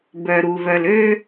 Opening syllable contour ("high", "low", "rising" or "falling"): low